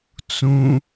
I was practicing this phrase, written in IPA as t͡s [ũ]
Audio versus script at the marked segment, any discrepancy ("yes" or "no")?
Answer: no